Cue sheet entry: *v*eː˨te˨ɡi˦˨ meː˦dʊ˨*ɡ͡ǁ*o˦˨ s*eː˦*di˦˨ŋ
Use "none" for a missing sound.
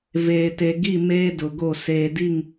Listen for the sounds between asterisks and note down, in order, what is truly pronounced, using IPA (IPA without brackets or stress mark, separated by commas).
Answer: v, ɡ, eː˨